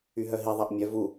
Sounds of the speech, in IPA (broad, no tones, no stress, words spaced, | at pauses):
yɦœɦi ðˤaʔmʲœ vu